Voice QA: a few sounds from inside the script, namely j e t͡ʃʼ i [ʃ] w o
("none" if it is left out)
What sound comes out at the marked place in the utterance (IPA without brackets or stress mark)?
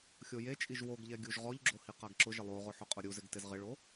ʒ